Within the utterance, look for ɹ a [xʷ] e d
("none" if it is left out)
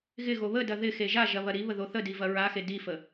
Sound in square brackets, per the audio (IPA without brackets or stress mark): x